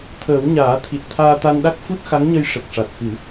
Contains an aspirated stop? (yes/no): yes